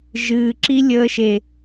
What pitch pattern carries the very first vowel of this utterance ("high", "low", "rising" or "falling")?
low